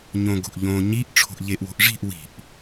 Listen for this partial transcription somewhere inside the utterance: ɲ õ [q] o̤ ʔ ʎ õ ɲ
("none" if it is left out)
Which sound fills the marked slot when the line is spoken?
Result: ɡ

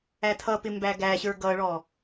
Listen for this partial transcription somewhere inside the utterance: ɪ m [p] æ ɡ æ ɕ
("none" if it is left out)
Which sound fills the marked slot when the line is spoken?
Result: b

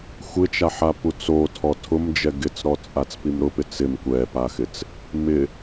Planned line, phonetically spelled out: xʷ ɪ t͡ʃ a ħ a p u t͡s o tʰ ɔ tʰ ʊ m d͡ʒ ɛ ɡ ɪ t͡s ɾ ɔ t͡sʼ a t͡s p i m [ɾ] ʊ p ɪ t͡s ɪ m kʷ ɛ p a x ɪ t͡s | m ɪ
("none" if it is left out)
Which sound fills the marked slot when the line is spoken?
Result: ɾ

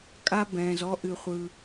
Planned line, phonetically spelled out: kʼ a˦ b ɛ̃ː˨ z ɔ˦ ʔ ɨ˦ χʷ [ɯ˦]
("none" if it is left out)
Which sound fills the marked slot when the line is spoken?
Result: ɯ˦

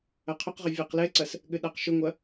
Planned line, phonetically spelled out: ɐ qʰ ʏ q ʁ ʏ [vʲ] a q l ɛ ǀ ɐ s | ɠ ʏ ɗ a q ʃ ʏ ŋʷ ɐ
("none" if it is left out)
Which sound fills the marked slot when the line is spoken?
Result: vʲ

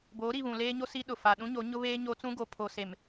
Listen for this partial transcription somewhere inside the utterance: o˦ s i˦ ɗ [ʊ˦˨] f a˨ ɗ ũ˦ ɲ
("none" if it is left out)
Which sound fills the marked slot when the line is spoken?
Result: ʊ˨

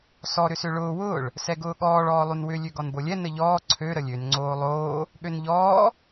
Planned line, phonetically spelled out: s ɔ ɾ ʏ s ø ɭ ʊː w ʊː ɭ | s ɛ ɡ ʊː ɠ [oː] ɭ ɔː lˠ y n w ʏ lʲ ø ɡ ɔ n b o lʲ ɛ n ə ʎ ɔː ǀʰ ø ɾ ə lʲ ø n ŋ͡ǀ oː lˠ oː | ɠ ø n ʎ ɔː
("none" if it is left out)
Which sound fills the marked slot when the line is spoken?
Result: ɔː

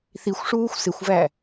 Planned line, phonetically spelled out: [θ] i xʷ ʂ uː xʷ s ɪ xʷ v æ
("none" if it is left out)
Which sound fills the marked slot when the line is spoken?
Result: θ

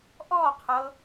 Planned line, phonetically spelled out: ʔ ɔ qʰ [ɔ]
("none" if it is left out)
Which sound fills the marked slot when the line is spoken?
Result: ɤ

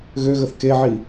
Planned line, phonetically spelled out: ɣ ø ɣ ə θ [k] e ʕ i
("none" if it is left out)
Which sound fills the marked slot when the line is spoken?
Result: k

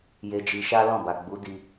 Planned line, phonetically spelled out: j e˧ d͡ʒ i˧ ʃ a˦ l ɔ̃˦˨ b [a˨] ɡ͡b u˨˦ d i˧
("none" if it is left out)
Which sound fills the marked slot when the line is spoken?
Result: a˨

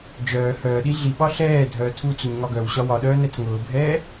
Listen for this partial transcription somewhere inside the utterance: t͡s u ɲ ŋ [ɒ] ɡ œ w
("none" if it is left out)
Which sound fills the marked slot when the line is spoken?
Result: ɒ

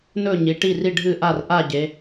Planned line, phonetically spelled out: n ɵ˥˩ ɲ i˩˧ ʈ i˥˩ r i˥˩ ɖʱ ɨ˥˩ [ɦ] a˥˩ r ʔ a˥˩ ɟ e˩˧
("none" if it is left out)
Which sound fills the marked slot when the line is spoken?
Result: ʔ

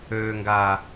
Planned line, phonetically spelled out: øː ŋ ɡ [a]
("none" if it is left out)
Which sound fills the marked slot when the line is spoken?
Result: aː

